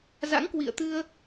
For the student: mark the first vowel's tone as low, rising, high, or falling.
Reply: rising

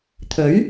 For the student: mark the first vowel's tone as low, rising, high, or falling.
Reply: rising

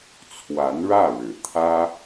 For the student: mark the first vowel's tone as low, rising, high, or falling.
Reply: rising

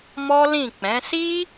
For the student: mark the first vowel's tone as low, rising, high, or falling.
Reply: high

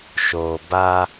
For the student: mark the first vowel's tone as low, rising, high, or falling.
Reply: low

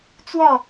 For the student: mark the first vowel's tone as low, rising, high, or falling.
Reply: falling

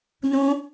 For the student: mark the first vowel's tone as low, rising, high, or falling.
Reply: high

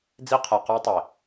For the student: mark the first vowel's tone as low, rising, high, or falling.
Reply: high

